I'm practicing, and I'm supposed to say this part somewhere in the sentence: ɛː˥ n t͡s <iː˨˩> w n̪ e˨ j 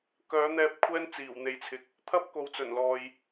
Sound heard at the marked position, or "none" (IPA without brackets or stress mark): iː˨˩